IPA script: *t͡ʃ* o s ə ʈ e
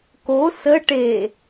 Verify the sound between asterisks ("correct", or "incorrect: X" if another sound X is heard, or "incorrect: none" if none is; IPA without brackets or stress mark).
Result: incorrect: k